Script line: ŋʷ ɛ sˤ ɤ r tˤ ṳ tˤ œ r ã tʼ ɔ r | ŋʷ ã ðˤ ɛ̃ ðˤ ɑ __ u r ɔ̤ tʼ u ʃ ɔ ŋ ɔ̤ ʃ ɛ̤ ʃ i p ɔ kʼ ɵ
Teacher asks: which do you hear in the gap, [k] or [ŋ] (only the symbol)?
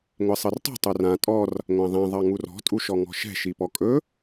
ŋ